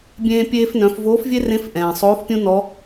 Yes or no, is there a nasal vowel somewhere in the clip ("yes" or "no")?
yes